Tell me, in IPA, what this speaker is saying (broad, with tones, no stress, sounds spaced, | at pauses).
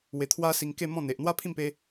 w e˧ t̪ʰ w a˦ s i˧ ŋ k e˥˧ m ɔ̃˥˧ n̪ e˨ ʔ n̪ w a˦ pʰ ĩ˥˧ m p e˧